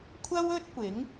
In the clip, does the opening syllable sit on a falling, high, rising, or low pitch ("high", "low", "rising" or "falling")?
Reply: high